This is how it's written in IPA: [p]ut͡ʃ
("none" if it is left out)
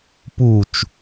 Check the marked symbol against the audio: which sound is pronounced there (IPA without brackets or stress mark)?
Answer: p